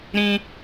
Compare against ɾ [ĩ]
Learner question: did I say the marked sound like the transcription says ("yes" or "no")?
yes